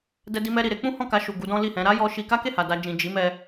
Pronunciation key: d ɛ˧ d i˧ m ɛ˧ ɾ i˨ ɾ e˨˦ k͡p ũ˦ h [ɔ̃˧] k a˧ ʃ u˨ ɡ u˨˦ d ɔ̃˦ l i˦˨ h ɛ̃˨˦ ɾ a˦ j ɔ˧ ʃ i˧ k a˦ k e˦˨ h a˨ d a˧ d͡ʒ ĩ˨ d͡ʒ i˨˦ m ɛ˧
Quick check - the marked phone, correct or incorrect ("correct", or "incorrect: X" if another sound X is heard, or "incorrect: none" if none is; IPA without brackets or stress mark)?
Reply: incorrect: ɔ̃˦˨